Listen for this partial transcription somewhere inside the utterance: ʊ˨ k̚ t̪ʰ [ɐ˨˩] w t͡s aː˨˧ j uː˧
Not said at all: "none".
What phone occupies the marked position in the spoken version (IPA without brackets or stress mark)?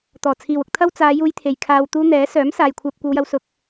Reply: ɐ˥